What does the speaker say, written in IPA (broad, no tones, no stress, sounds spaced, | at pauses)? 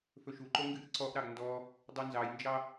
f ɵ ʃ u ǃ o ŋ ɡ ɨ ʔ ǀ ɔ ʔ ɾ ɑ ɡ n d ɔ | dˤ u n z ɑ j n d͡ʒ ɑ